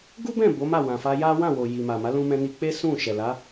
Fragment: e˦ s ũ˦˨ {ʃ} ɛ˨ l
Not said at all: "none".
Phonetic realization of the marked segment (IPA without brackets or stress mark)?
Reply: ʃ